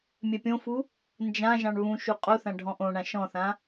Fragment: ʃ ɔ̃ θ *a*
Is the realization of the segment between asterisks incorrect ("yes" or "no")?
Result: yes